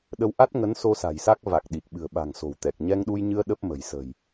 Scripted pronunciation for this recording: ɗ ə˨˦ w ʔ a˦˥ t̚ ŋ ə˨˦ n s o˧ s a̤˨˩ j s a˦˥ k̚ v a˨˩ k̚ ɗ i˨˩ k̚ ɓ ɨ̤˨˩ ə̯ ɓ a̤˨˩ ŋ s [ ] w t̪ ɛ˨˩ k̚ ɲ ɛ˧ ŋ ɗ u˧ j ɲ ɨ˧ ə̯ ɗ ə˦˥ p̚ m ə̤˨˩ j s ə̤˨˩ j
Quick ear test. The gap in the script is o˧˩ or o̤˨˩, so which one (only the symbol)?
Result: o̤˨˩